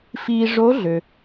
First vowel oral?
yes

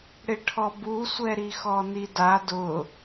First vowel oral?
yes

